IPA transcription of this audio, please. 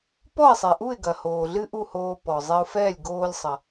p ɔ˥˩ ɪ̯ sˤ e˩ ʔ u˥˩ ɪ̯ ɡ ɐ˩ h oː˩ ɮ ɨ˥ ʔ u˥˩ h oː˧ p ɔ˩ zˤ e˧ ʊ̯ f ɛː˥˩ lʲ ɡ oː˧ lʲ sˤ ɐ˩

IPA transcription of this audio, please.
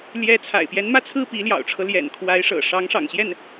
l j ɛ˧˥ t͡sʰ a̰˨˩ ɪ̯ p j ɛ˧˥ n m ä˥˧ t͡sʰ ɹ̩˥˩ p i˧˥ l j ɑ̰˨˩ ʊ̯ ʈ͡ʂʰ ɤ˦ l j ɛ̰˨˩ n kʰ w a˧˥ ɪ̯ ʂ ɤ̰˨˩ ʂ ɑ˧˥ ŋ ʂ ɑ̰˨˩ ŋ ɕ j ɛ˥˩ n

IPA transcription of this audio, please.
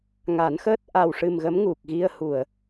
ŋ a˨˩˦ n x əː˦˥ t̚ ʔ a˨˩ w ʂ ɨ˨˩ m ɣ ə˧˥ m ŋ u˨˩ k̚ ɣ i˧ ə̯ h u˨˩˨ ə̯

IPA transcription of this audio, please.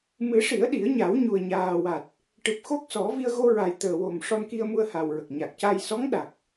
m ɨ˨˩˦ ʂ i˨˩˦ ə̯ ɗ i˨˩˦ ə̯ ɲ a˨˩˦ w ɲ u˨˩ ə̯ ɲ aː˨˩ w a˨˩ t̚ | ʈ ɨ˨˩ p̚ x o˦˥ k̚ s ɔ˨˩˦ v i˧ ə̯ ɣ o˧ ɹ a˨˩ j t̪ əː˨˩ w o˨˩ m ʂ ɔ˧ n k i˧ ə̯ m u˧ ə̯ h a˨˩ w ɹ ə˨˩ k̚ ɲ a˨˩ k̚ c a˧ j s ɔ˧˥ ŋ ɗ a˨˩ k̚

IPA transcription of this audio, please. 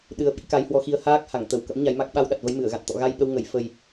ɗ ɨ˧ ə̯ ɓ ḭ˧˥ k a˨˦ j h w ɔ˧ x i˧ ə̯ h aː˦˥ k̚ h a˧˩ ŋ t̪ ə˧˩ w k ə̰˧˥ m ɲ a˨˦ j m a˦˥ k̚ ɓ a˧ w ɗ a˨˩ t̚ v ə˨˦ j m ɨ˧˩ ə̯ ɣ a̰˧˨ n t̪ ɔ̰˧˨ ɣ a˧ j ɓ ə˧ w ŋ ə˧˩ j f ə˨˩ j

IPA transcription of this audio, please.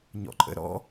ɲ ɔ̰ ǃʼ ə̰ ɾ ɔ̰

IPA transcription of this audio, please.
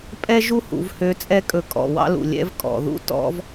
pʼ ɛ˥ ʒ u˥ h ṵ˩˧ v h ø˧ t͡sʼ ɛ˥ kʼ ɵ˧ kʼ ɔ̰˩ w ɑ̰˥ l ṵ˩ lʲ ɛ̰˧˥ v kʼ ɔ̰˩ ð ṵ˥ t ɔ̰˧˥ v

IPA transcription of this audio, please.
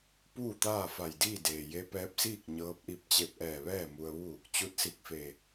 p uː˥˨ t̪ aː˥˨ f a˧˩ j d iː˥˨ d eː˩ j e˧˥ p ɛː˧˥ p̚ s iː˥˨ k̚ ɲ ɤː˧˥ p̚ ʔ i˧˥ p̚ t͡ɕ e˧ p̚ ʔ ɛː˧˩ ʋ ɛː˥˨ m u˧ ə̯ ʋ u˥˨ | t͡ɕ u˧˥ t̚ s i˧˩ k̚ f e˧˩

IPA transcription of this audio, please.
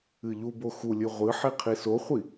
ɨ ʎ u b o x u lʲ ɨ ʁʷ ɨ ħ i qʰ i s o χʷ i

